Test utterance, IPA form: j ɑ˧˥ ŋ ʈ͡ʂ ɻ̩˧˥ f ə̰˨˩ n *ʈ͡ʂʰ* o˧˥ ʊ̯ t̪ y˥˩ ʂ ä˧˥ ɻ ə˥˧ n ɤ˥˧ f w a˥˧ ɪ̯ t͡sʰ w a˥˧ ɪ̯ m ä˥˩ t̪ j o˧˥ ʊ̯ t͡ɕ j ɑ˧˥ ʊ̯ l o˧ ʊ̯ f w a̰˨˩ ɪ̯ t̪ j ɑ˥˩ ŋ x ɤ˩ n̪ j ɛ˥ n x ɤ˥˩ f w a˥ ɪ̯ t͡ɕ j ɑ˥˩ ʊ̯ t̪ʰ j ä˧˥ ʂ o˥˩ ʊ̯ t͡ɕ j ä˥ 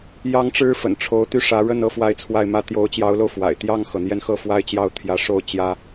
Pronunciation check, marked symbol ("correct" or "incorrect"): correct